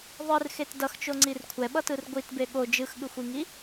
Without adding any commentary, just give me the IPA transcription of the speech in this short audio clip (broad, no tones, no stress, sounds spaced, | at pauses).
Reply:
ðˤ ɯ r x e t d ʌ x t͡ʃ o ŋ͡ǀ i r kʷʰ ɛ ɓ ʌ t ɯ r ɡʷ i t b e ɠ o d͡ʒ ɯ x ɠ ɯ xʷ i ŋ i